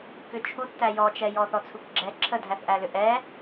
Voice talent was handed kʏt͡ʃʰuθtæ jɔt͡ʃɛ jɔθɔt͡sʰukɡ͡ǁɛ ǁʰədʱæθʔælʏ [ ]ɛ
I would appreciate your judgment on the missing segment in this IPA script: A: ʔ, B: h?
A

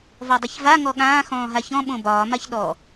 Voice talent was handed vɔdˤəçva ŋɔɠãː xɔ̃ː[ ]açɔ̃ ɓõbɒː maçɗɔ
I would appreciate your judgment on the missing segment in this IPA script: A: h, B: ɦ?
B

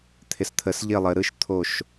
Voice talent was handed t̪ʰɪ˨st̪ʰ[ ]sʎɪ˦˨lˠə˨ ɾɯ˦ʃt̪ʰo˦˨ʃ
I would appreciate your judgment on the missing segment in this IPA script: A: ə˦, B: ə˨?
B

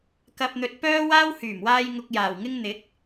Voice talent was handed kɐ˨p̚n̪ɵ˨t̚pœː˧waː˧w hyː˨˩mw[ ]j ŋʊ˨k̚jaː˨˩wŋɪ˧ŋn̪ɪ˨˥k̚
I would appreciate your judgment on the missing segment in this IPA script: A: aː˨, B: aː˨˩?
A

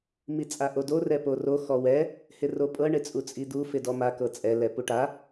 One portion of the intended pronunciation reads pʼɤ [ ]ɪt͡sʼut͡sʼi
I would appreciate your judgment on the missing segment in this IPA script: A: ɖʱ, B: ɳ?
B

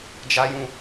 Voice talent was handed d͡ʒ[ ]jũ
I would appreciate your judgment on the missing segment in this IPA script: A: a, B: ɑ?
A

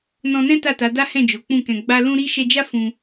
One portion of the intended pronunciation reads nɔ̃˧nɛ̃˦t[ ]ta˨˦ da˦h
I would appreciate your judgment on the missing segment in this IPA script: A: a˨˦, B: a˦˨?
B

